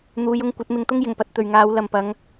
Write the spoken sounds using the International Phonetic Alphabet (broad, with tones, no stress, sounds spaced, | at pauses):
n̪ uː˨˧ j ʊ˧ ŋ kʷ ɐ˨˥ t̚ m ɪ˧ ŋ t̪ ʊ˥ ŋ j ɪ˨˩ ŋ p ɐ˧ t̚ t̪ ɵ˨ ɥ ŋ aː˨˧ w l ɐ˨ m p ɐ˨˧ ŋ